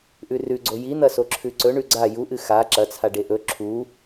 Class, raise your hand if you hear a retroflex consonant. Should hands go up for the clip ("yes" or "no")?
yes